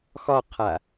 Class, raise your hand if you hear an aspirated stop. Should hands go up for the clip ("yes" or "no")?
yes